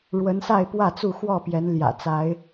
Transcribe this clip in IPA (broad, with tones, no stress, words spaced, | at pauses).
ɻwə˨˦nsa˥˨ɪ̯pwä˥˨t͡su˥˨ xwɔ˥˨pjɛ˨˦nljä̰˨˩t͡sa˨˦ɪ̯